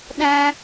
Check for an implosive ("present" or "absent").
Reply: present